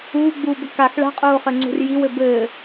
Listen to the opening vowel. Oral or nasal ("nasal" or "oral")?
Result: oral